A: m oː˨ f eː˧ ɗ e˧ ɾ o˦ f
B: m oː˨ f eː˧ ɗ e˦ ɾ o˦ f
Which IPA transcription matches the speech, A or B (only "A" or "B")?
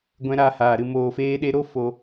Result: A